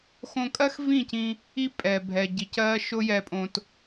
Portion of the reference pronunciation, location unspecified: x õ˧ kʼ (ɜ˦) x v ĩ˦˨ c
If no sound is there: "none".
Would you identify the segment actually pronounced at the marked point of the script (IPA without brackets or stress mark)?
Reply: ɜ˦